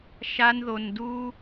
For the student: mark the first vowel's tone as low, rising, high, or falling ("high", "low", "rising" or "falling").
high